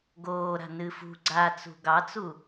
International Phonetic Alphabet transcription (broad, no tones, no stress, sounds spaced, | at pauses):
ɡ oː ɾ a̤ n ɨ f ṳ ɡ͡ǀ a t͡s ṳ ɡ ɑ t͡s u